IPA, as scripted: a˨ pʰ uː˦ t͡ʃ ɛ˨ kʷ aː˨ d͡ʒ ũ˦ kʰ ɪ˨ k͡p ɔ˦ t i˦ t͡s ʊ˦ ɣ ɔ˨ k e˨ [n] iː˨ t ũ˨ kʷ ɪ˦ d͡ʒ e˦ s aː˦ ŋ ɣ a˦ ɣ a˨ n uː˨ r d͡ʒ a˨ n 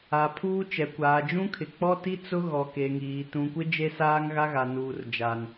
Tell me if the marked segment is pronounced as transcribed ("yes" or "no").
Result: no